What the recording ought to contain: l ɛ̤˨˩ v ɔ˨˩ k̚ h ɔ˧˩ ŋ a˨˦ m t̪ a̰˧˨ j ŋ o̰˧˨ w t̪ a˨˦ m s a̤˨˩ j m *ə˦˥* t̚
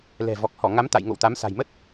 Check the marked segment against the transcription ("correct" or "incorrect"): correct